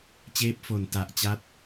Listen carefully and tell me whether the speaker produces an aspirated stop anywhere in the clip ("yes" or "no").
no